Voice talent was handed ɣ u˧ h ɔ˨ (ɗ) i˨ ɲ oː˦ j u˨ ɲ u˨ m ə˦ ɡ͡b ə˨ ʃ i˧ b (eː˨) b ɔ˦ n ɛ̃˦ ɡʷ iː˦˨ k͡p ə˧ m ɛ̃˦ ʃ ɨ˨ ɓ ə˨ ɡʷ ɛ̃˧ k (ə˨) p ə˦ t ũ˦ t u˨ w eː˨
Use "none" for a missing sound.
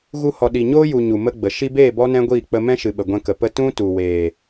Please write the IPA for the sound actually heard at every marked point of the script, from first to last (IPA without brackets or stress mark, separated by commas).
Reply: ɗ, eː˦˨, ə˨